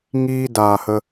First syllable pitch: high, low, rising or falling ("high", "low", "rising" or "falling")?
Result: high